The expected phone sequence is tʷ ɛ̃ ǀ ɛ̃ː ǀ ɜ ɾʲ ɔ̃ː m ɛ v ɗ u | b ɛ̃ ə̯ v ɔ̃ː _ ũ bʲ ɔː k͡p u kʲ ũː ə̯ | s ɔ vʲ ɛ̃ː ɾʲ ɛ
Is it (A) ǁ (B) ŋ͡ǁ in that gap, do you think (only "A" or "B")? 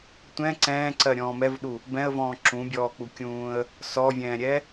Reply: A